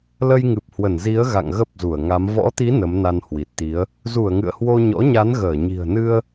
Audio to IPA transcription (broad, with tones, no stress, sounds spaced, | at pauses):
l ə˧ j ŋ ɨ˨˩ p̚ h w ə˧˩ n z i˨˦ ə̯ ɣ a̰˧˨ ŋ ɣ ə˦˥ p̚ z u˧˩ ə̯ ŋ a˨˦ m v ɔ̰˧˥ t̪ i˨˦ n ə˨˦ m n a˧ n h w i˨˩ t̚ t̪ i˨˦ ə̯ | z u˧˩ ə̯ ŋ ɨ̰˧˨ ə̯ h w o˧ ɲ ɔ̰˧˥ ɲ a˨˦ n ɣ əː˧˩ ɲ i̤˨˩ ə̯ n ɨ˧ ə̯